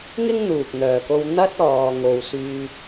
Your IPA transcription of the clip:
ŋ ɪ˥ ŋ n̪ uː˨ k̚ n̪ œː˨ k o˧ w n̪ ɐ˥ t̚ ɔː˧ ŋ o˧ w s yː˥

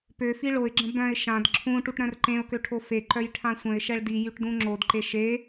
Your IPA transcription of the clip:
p ø f i ɭ o ɪ̯ ɡ͡ǁ ə̃ b œ̃ ɪ̯ ʃ ã d ǁʰ ũ ʈ u ʈ ɾ œ̃ r ǃ ẽ ʊ̯ k ø ʈʰ o f e ǃ œ j ʈʰ ã sʷ ə̃ ɪ̯ ʃ ɛ ɭ d i j y ʈ d ũ ŋ͡ǁ o d ǃ e ʃ e

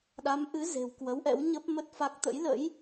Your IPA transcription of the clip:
ɗ a˨˦ m ʔ ɨ˨˦ z e̤˨˩ w k w ə˨˦ w ʔ ɛ̰˧˥ w ɲ ə˦˥ p̚ m ə˦˥ t̚ f a˦˥ k̚ t̪ ə̰˧˥ j l ə̰˧˥ j

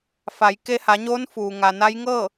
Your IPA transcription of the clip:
f a˩˧ j k e˧ h a˩˧ ɲ oː˧˥ n f uː˩ ŋ a˩ n a˧˥ j ŋ ɤː˥˨

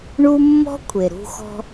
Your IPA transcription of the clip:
ɳ u˥ mː ɔ̤˥ kʷʰ e˩ ɾ ṳ˧ x ɔ̤˧

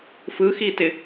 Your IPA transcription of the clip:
f ɯ x i t ɪ

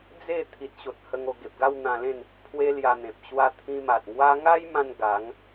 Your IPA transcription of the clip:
d͡z e˥˧ t̪ʰ i˨ t̚ ɕ o˨ t̚ h ə˧ ŋ o˧ ɡ e˨ p̚ ɡ a˥˧ w n̪ ã˧ l ẽ˥˧ n | pʰ w e˦ l j a˧ n̪ ẽ˨ p̚ ɕ w a˧ t̪ʰ ĩ˧ m a˨ t̚ ŋ w a˦ ŋ a˦ j m ã˧ n ɡ a˨˦ ŋ

